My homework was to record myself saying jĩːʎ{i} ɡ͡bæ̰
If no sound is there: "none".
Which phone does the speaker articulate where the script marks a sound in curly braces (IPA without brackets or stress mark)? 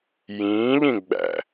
ĩ